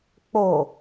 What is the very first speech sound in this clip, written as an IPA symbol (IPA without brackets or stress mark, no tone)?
k͡p